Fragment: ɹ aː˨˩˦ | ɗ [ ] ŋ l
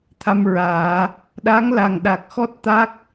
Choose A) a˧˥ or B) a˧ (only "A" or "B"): A